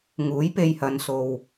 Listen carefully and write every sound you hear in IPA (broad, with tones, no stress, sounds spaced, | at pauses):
ŋ uː˨˥ j p e˧ j h ɐ˨˧ n s o˨ w